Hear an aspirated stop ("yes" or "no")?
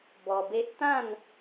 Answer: no